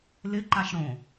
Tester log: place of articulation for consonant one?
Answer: alveolar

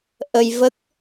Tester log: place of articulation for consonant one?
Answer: glottal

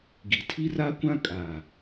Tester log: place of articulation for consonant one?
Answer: velar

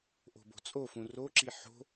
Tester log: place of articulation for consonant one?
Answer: glottal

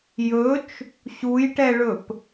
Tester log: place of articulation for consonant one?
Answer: palatal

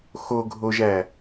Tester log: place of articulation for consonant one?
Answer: velar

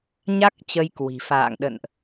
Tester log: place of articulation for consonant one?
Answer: palatal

